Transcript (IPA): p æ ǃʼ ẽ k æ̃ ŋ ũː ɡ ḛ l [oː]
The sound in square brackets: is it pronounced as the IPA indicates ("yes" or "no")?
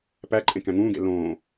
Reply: no